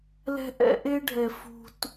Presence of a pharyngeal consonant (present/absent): absent